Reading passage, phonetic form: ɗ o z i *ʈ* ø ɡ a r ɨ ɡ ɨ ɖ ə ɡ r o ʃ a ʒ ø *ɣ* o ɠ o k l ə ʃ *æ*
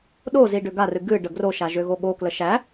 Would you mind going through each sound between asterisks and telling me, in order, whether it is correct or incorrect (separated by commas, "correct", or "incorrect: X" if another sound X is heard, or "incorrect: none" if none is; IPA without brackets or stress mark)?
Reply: incorrect: ɖ, correct, correct